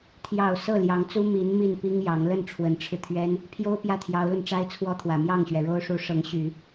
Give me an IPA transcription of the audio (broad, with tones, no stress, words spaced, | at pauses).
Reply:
t̪ʰjɑ˨˩ʊ̯ sɤ˥˩ljɑ˧˥ŋt͡su˥ mi˧˥n mi˥˩npi˥ŋjɑ˧˥ŋ lə˥˩nʈ͡ʂʰwə˧˥nʈ͡ʂʰɻ̩˧t̪ʰɥɛ˥n | pʰjo˥ʊ̯pjä˥˩t̪ʰjɑ˧˥ʊ̯lə˧n ʈ͡ʂa˥ɪ̯t͡sʰwɔ˥t̪ʰwä˨˩ mjɑ˥˩ŋɕɥɛ˩ɻo˥ʊ̯ʂu˧˥ ʂɤ˧˥ŋɕy˨˩˦